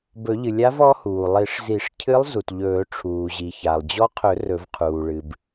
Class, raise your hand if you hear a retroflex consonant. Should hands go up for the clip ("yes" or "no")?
yes